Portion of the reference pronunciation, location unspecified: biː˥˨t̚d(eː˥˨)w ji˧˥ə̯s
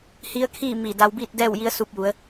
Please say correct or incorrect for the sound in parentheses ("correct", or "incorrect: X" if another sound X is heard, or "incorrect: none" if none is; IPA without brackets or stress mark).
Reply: incorrect: ɛː˥˨